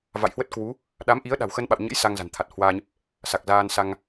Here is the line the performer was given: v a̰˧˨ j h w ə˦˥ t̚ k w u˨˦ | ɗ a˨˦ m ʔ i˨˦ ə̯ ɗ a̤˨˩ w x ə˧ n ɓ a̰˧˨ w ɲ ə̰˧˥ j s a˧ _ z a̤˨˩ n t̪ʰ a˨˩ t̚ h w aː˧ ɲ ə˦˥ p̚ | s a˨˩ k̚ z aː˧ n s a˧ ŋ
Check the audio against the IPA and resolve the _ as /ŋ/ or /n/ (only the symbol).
ŋ